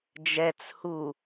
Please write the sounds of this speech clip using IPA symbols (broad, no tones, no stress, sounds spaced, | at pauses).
d͡ʒ ɛ t͡s h u